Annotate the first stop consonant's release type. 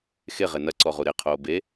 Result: click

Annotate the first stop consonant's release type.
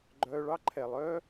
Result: click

